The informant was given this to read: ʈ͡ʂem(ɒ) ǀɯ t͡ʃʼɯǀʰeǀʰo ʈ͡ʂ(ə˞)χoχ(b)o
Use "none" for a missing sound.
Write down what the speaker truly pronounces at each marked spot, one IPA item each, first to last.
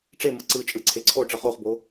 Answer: ʌ, ʌ, b

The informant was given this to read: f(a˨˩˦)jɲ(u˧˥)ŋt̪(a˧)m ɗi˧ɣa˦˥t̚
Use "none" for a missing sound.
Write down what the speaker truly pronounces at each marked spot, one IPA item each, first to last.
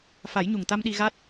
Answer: a˨˩˦, u˨˩, a˧

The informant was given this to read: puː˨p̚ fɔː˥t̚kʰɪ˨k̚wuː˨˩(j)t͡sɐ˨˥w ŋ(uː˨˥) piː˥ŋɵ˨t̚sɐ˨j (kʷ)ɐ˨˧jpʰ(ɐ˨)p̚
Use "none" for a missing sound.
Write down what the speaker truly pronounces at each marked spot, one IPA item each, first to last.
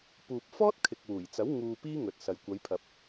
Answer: j, uː˧, kʷ, ɐ˨

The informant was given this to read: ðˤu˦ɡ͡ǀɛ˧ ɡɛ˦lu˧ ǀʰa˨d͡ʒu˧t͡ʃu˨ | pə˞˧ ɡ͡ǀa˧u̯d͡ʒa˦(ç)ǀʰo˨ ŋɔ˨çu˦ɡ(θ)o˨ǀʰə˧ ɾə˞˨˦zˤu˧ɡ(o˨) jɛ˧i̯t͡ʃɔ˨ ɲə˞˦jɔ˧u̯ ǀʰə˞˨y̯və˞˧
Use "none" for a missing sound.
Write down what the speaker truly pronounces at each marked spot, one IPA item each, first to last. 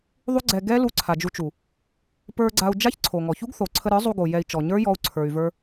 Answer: ç, θ, o˨

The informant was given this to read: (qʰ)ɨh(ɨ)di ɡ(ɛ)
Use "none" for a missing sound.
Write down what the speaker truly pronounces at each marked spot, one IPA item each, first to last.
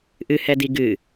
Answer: ʔ, ɛ, ɨ

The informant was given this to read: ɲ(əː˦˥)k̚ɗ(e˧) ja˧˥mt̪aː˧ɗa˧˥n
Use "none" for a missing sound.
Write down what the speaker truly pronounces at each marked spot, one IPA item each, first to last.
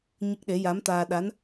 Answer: ə˦˥, e˧˥

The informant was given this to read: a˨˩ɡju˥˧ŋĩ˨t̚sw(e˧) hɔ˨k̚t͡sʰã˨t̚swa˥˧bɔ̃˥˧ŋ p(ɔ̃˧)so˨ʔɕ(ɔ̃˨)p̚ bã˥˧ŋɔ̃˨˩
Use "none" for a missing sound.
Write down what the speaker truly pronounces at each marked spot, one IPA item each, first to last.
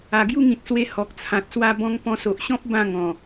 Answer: e˧, ɔ̃˧, ɔ̃˦

